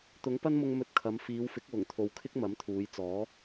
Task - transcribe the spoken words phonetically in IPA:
t̪ ʊ˨˥ ŋ p ɐ˥ n m ʊ˧ ŋ m ɵ˧ t̚ kʰ ɐ˨˧ m f iː˨˧ w f ɪ˨˥ k̚ w ʊ˨˩ ŋ t̪ʰ o˨ w kʰ ɪ˥ k̚ m ɐ˨˥ m t̪ʰ uː˨˧ j t͡s ɔː˨˥

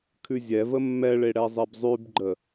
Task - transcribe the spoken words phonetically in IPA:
kʰ ʉ zʲ ɛ v ə mː ɛ ɭ e ɽ ɛ zˤ e b zˤ ʉ b ɡ͡ǃ ə

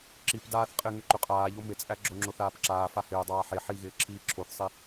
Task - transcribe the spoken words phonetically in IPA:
ǁ i p d aː θ qʼ ɪ ŋ ʏ ǃ ʏ qʼ aː ʎ o m ɪ t͡sʼ æ ɡ͡ǁ o ŋ͡ǁ o θ aː p ǁ aː f a h ɪː dˤ aː ħ e ħ i ɣ ɪː ǁʰ iː ǁʰ o θ sˤ i

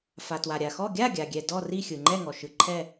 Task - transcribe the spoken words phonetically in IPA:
f a˩ t w a˩ ɾʲ a˩ x ɔ˥˨ ɡʲ a˥˨ ɡʲ a˩ ɡʲ ɛ˩ d ɔ˥˨ r i˥˨ xʲ ɯ˩ ŋ͡ǃ ɛ˥˨ ŋ ɔ˩ ʃ ɯ˩ ǃʰ ɛ˥˨

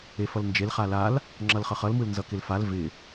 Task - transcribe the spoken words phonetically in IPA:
e f ʌ l n d͡ʒ e l χ a l a l | ŋ͡ǁ ʌ l χ ʌ χ ʌ l m ɯ l n z ʌ k ɪ l f a l v ɪ

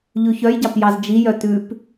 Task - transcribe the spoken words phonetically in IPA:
ʎ ʉ ç œ j ɟ ɑ p j ɑ z d͡ʒ i j œ t ʉ p

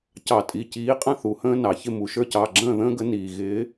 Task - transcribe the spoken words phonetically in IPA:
c ɑ˧˩˧ tʼ i˩˧˩ c iː˨˦ qʼ ə̃˦˨ θ u˩ h ə̃ː˦ n ɑ˩ ç ɪ˦˨ m u˩ ʃ ə˞˦ c ɑ˩˧˩ ɡ͡ǁ ə̃ː˦˨ ð ə̃ː˦ ɡ ə˨˦ n iː˩ ɣ ɪː˨˦

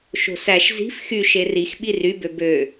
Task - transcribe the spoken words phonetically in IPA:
ʃ o̤ s æ ʃ z i̤ f x y ʃ e r i x ɓ i r y b ø b ø

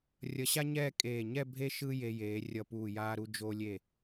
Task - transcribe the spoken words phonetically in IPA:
rʲ ʌ˧ ɕ a˥ ɲ ɛː˥˧ kʼ eː˧˩ ɲ ɛ˥˧ bʱ e˥ ʃ ɯ˥ j e˧ j eː˩˧ rʲ ʌ˧˩ p uː˧˩ j aː˧ ɾ u˧ d͡ʒ o˧ lʲ e˧˩

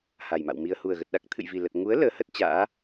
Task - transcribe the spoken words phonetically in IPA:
h a˨˩ j m a̰˧˨ w m i˧ ə̯ h u˨˩ ə̯ ɣ ə˨˩ t̚ ɗ a˦˥ k̚ t̪ʰ ɨ̰˧˨ j v i˨˩ l ə˨˩ t̚ ŋ u˨˦ ə̯ l əː˨˦ h ə˦˥ t̚ t͡ɕ a̰ː˧˥

